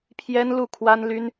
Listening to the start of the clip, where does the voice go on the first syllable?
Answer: high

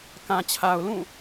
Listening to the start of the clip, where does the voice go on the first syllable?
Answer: low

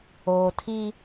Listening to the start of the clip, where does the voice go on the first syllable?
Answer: low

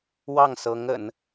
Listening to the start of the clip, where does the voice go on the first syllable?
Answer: falling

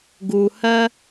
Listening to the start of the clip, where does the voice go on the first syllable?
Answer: low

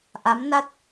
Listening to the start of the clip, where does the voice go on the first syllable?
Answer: rising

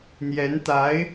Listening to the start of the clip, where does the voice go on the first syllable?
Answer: rising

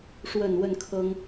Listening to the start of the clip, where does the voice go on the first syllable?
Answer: low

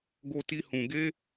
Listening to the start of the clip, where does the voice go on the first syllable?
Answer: high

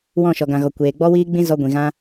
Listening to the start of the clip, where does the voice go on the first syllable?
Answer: falling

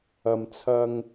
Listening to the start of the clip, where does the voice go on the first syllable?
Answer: low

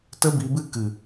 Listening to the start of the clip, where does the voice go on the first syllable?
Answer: high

